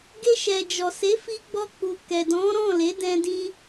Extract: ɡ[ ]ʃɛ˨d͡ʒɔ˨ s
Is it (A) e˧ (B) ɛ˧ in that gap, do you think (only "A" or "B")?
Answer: A